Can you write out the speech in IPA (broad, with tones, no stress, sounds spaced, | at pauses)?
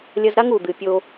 lʲ ɐ˧ z ɾ a˦ ŋ u˨ d̪ ɨ˨ pʲ o˧